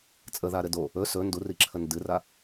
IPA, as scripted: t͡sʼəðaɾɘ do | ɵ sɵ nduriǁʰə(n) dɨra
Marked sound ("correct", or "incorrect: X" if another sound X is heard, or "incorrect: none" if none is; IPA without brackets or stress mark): correct